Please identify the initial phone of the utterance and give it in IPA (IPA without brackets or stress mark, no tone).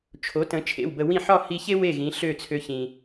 t͡ʃʰ